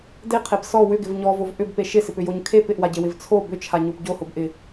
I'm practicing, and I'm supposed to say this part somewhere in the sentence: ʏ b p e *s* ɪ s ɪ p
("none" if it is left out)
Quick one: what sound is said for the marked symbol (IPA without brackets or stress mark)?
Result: ʃ